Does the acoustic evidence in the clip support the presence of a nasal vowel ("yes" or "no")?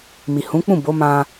yes